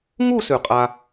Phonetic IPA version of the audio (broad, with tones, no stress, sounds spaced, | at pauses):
ŋ u˥˧ s ʉ˧˩ qʼ a˥